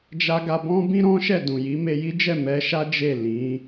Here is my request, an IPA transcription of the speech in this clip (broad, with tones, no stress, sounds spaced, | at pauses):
d͡ʒ a˧ ɡ a˧ b ɔ̃˦ b ĩ˦ ɾ ɔ̃˦ ʃ ɛ˦˨ d ũ˨ j i˨˦ m e˧ j i˦ d͡ʒ ɛ˦˨ m ɛ˧ ʃ a˦ d͡ʒ e˦˨ l ĩ˨˦